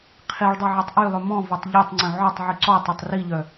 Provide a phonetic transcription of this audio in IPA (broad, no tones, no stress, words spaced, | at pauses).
qʰiɭdˤɛ ʕitˤʔylˠœ mɔ̃vatˤ ʎœtˤŋ͡ǀœ̃ ʕɔtˤʕy ǀɔtˤøtˤ riʎœ